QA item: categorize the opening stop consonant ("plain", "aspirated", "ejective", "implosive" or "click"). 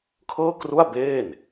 aspirated